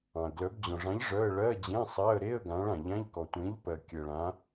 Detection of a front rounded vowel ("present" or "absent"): present